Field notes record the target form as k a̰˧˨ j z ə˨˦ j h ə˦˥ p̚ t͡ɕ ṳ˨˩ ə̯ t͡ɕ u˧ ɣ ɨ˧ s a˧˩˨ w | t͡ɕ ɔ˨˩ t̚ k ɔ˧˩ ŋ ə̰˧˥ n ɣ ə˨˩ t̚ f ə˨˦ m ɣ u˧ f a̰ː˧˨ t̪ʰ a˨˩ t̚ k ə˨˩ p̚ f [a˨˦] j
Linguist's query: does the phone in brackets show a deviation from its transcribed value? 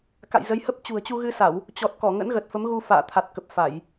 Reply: yes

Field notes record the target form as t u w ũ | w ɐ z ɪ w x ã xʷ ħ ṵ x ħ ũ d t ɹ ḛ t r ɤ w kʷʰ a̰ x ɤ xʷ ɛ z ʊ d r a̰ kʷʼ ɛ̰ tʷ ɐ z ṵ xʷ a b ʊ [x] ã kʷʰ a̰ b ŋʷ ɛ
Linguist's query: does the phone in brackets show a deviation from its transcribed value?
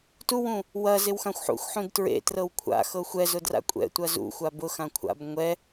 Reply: no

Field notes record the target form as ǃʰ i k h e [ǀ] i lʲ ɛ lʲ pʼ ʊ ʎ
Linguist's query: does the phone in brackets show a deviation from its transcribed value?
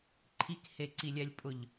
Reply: no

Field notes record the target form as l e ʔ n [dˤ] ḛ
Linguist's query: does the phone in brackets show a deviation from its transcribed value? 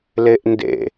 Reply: yes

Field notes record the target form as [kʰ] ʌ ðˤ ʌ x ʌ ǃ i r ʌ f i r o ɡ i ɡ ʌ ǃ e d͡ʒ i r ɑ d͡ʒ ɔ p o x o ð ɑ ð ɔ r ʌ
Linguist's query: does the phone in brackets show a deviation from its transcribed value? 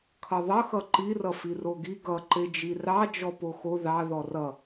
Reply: no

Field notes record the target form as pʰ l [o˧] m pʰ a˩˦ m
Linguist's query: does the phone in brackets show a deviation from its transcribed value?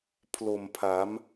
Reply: yes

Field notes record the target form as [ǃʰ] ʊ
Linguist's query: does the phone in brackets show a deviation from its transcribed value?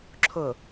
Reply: yes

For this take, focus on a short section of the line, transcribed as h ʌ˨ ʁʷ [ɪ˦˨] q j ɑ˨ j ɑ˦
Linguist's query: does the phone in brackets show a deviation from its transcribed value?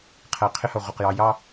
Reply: yes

